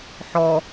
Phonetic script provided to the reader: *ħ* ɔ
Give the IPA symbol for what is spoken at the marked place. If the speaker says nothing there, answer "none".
ħ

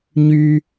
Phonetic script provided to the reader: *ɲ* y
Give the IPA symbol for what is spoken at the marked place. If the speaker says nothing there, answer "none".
ɲ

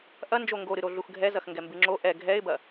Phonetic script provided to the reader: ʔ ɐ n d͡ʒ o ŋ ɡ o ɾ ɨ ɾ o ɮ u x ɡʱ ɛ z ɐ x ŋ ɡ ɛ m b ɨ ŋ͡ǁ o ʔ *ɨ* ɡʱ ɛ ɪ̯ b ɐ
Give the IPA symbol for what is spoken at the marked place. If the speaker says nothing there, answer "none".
ɛ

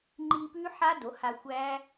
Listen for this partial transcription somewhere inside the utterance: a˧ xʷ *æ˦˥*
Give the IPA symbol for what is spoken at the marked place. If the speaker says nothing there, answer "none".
æ˦˥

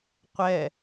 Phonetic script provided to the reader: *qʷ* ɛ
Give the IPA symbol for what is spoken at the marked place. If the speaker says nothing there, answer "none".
qʷ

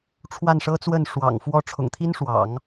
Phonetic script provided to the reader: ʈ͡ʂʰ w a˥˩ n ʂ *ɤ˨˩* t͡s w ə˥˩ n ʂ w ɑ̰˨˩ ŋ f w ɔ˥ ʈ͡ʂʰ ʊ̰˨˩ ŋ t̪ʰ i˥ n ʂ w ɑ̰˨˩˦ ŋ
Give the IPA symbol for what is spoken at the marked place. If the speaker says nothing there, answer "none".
ɤ˥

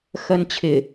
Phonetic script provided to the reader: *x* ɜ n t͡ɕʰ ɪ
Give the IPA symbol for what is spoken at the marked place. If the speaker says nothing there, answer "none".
x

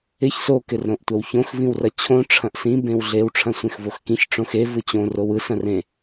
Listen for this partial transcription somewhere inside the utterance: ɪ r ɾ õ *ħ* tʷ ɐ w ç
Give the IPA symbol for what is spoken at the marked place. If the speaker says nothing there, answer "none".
ʔ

